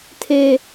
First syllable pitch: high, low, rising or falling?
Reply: high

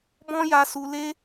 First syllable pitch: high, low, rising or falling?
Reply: high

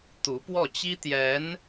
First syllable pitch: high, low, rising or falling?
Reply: rising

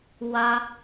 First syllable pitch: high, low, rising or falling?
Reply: high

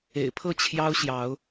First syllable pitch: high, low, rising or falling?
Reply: low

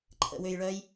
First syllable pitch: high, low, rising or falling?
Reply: low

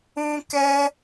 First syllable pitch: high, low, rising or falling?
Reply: high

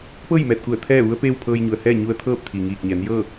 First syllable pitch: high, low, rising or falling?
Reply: falling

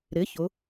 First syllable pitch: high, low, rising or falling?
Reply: rising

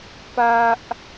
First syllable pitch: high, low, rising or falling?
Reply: high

